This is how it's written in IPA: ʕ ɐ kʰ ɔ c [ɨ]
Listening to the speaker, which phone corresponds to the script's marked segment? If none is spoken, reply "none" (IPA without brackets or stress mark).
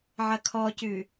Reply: ʉ